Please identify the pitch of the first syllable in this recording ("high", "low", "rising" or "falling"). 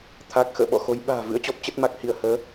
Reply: low